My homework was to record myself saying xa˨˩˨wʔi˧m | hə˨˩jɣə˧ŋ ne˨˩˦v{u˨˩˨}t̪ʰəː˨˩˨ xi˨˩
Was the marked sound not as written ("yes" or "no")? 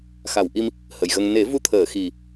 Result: yes